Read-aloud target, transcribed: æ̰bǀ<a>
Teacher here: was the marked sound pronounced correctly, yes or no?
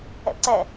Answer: no